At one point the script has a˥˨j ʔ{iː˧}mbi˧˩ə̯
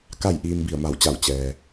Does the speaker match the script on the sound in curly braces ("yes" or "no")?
yes